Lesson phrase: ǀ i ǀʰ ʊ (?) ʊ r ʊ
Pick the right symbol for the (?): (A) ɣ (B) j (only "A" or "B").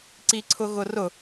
A